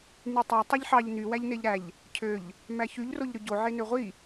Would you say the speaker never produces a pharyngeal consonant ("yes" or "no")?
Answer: no